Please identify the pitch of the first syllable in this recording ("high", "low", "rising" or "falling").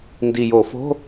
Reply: low